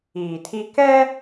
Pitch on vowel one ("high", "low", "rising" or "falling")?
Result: low